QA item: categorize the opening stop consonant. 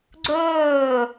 click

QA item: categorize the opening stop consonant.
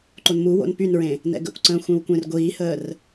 click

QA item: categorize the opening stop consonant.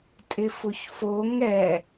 ejective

